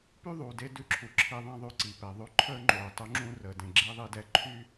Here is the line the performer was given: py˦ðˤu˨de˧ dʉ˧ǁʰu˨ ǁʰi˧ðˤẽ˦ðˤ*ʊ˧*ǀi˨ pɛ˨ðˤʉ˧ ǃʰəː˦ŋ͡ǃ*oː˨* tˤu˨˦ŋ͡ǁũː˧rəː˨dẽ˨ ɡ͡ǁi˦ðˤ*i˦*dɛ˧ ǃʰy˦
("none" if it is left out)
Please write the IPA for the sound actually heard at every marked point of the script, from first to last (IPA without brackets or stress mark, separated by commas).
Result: ʉ˧, oː˨, i˦